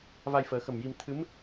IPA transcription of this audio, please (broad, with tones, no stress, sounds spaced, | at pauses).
v a˧ j f əː˨˩˦ x ə˨˩ m j i˧ m t̪ʰ ɨ˧˥ m